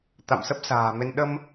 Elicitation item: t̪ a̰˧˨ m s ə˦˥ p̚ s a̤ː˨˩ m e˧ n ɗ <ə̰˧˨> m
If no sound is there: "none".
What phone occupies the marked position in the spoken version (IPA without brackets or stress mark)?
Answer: ə˧